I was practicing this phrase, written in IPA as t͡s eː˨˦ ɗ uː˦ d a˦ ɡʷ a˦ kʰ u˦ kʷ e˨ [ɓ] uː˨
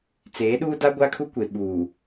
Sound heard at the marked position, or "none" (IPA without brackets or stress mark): ɓ